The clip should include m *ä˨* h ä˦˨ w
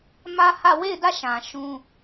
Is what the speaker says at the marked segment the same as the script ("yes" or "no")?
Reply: no